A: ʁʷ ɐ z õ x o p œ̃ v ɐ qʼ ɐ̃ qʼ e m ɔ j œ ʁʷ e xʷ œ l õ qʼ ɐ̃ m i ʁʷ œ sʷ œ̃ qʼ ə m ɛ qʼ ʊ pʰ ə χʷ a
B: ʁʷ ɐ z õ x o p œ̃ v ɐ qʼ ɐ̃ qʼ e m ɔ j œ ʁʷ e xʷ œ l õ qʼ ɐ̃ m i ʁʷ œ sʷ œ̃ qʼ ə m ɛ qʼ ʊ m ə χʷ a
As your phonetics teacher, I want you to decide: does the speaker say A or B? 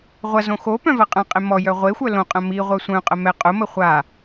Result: B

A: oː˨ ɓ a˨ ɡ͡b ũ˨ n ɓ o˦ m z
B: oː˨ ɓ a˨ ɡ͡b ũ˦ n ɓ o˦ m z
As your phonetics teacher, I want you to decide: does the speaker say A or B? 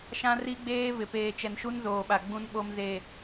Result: B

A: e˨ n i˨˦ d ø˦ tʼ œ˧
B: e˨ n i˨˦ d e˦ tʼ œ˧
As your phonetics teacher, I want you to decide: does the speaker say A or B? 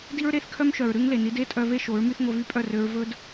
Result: B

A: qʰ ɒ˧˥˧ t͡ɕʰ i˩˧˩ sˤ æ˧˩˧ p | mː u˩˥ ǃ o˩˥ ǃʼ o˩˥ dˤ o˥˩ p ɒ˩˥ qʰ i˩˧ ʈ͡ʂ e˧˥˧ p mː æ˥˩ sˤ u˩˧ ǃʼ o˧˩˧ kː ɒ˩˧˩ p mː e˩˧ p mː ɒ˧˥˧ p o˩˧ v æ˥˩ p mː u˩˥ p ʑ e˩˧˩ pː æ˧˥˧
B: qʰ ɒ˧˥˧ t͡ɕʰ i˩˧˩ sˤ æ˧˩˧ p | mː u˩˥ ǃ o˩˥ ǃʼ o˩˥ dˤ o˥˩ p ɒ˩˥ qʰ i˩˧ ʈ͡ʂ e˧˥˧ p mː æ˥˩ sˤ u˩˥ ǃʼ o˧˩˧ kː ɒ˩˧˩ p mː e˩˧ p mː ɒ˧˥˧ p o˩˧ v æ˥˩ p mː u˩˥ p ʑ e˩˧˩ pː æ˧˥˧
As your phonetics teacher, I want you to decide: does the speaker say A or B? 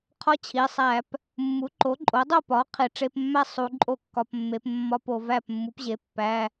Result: A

